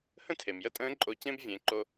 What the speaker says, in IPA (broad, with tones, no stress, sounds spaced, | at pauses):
h ə̃˥ tʰ e˩ m j ə˥ tʼ ə̃ː˧˥ ǃʼ o˧ c ẽ˥ b vʲ ẽ˩˧ ǃ o˧